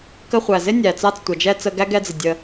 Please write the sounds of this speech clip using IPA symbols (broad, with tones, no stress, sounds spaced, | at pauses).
k ə˧ χʷ æ˨ z ɪ˦ nʲ æ˨ t͡s ɑ˧ t͡s tʷ ʌ˨ d͡ʒ ɛ˧ t͡s ə˧ ɡ æ˦ ɡ ɛ˧ d͡z ɪ˨ dʲ ə˧